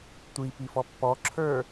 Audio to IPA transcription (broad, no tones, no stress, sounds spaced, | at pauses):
tʷ i p i f ɔ pː ɔ ǁʰ ə˞